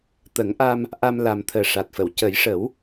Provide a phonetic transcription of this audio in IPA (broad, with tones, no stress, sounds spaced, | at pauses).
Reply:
t̪ ə˨˩˦ ŋ ʔ a˧ m | ʔ a˧ m l a˨˩ m t̪ʰ əː˨˩ ʂ a˨˩ t̚ f ə˨˩˨ w c ə˨˩˦ j ʂ ə˨˩˦ w